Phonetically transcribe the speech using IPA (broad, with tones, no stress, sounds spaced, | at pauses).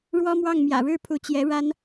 ɻ w ɔ˥ m w ɑ˥˩ ŋ m j ä̰˨˩ ɻ ɻ̩˥˩ pʰ u˧˥ t͡ɕ j ɛ˧˥ ɻ a˥ n